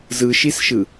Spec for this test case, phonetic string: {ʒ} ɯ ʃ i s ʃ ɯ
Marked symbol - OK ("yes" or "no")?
no